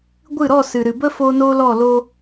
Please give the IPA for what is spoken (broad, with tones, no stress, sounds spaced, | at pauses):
ɡʷ ɨ˦˨ ɾ ɔ˦˨ s ɨ˨ ɾ ɨ˨ b ə˦ f o˦ n oː˦ l ɔ˦˨ l o˦